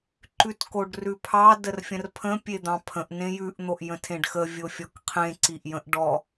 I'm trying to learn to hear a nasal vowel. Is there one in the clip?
yes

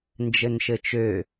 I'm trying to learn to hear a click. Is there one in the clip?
no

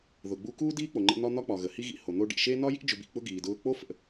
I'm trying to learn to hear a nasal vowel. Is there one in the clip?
no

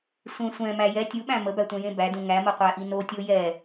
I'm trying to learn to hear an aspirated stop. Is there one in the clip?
no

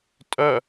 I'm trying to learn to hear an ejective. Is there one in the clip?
yes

